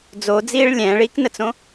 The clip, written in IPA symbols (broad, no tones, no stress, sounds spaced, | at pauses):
d͡z o d͡z iː ɭ lʲ ɛ̃ː ɭ iː k n ə t͡s õ